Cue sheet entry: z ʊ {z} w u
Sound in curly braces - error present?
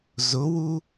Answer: yes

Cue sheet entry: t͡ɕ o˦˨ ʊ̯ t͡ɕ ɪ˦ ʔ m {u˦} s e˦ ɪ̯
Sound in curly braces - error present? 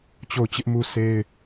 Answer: no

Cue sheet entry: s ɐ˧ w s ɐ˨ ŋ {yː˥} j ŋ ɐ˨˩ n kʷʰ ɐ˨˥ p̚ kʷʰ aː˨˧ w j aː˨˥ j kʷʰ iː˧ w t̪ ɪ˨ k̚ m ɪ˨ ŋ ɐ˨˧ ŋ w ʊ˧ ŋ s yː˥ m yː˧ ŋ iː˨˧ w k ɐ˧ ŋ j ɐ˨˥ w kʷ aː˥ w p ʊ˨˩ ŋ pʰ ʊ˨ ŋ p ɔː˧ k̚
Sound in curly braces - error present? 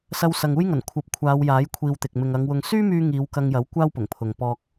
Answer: yes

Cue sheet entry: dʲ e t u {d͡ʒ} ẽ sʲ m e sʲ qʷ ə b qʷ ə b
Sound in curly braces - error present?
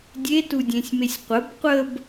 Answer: yes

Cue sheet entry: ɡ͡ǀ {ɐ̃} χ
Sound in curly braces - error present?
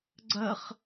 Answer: yes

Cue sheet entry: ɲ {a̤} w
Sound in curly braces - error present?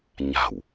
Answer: no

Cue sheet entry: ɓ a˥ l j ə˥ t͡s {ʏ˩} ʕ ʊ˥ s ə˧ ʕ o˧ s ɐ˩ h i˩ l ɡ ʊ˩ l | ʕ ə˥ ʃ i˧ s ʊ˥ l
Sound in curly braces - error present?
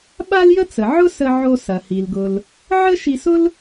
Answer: yes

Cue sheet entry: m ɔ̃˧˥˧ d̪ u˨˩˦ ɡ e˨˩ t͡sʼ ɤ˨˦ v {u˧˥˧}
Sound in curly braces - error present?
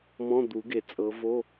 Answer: yes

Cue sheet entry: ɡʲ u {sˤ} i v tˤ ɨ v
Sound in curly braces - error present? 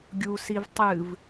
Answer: yes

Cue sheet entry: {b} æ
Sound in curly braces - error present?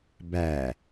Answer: no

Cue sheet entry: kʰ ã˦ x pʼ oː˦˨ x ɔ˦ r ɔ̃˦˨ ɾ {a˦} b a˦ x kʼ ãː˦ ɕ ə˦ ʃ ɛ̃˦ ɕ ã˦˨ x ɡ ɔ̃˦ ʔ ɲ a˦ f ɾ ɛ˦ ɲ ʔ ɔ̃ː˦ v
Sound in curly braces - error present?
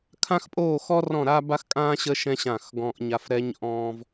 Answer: no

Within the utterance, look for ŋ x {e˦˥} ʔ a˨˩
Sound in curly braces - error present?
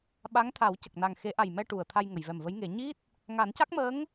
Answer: yes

